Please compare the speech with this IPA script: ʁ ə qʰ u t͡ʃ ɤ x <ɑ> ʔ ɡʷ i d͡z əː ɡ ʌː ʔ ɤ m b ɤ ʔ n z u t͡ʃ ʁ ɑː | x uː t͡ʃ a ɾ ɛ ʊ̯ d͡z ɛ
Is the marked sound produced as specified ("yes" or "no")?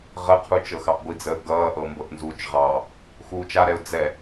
yes